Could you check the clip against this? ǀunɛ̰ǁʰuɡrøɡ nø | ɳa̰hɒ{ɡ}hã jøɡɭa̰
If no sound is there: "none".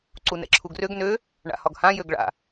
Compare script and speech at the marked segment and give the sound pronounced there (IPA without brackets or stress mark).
ɡ